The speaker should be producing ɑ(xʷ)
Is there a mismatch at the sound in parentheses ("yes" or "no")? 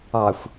no